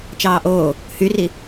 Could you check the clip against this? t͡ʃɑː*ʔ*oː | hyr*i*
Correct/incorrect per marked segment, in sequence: correct, correct

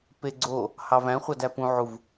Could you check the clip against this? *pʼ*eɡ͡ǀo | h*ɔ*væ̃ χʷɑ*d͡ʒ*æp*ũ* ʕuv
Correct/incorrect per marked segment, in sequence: incorrect, incorrect, incorrect, correct

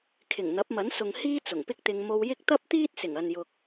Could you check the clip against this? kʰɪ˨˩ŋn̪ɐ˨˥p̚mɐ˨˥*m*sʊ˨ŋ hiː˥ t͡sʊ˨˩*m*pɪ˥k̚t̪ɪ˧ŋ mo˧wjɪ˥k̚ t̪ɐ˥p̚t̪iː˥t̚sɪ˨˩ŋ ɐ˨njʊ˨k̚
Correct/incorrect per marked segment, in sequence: incorrect, incorrect

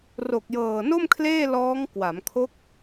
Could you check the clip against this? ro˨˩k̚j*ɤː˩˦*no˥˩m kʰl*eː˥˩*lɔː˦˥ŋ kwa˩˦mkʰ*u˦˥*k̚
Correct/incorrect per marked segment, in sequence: incorrect, correct, incorrect

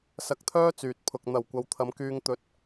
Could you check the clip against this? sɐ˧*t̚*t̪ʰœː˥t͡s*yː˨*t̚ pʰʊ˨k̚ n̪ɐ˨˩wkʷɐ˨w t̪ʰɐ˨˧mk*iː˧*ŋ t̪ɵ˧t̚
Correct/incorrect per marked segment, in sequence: incorrect, correct, incorrect

